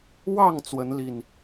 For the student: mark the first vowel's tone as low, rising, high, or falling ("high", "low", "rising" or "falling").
falling